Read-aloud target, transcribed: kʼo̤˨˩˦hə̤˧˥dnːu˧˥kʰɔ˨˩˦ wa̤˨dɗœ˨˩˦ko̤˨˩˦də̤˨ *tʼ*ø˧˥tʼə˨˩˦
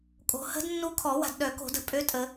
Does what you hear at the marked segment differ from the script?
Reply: yes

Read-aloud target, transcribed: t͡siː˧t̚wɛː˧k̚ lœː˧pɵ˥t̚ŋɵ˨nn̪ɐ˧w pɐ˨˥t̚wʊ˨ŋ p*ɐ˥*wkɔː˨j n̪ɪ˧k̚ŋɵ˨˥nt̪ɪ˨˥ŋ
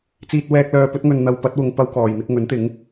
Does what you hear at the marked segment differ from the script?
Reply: no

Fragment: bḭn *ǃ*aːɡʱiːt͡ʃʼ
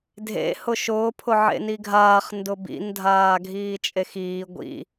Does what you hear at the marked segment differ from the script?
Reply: yes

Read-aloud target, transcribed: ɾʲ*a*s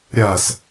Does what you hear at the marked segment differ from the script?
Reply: no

